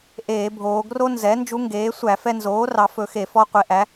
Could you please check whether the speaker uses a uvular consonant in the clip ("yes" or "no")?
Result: yes